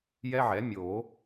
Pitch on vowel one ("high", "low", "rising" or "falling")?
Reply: high